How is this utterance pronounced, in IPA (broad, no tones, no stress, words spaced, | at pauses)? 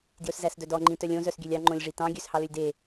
djɵszæsdœdɔ ŋ͡ǃĩtœlʲõ zœsɡʲølʲɑ ŋ͡ǃõlʲʐitɑ̃ ɡʲøshɑlølʲde